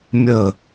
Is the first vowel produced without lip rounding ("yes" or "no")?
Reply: yes